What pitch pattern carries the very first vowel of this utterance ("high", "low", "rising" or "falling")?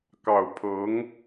low